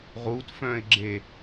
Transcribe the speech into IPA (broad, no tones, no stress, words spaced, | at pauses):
ʁutfœ̃ɪ̯ɡ͡ǁe